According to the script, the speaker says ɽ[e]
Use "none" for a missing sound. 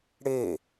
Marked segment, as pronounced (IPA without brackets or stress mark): e